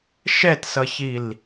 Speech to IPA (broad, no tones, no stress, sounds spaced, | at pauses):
ʃ ɛ t s ʌ ç i l